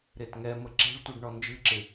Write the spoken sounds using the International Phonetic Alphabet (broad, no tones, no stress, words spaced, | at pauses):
ɾetŋɛmə ǁe̤ɭtʷɨɖ ɳɔnd͡ʒɨǁɪ